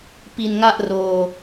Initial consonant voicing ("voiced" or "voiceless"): voiceless